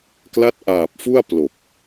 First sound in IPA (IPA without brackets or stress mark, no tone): k